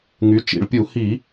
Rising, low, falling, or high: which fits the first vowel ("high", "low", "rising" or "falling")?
rising